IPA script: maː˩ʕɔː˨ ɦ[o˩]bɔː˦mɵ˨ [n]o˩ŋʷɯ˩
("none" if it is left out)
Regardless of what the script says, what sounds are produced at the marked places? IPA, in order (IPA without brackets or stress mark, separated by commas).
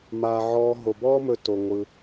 o˩, t